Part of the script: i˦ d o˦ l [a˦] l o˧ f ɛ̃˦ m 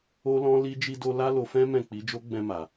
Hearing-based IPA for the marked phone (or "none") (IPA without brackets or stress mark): a˦